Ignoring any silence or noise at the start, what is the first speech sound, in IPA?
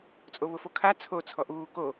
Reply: t͡sʼ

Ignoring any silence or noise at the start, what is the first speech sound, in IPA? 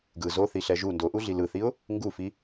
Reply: ɡ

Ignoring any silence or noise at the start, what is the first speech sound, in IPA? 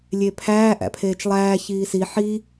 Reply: lʲ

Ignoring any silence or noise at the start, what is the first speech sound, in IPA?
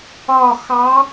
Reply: ɒ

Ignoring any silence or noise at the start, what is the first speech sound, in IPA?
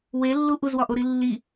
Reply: w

